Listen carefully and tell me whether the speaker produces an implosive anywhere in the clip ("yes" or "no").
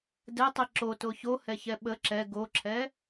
yes